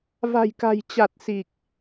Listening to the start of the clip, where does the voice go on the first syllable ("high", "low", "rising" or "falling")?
low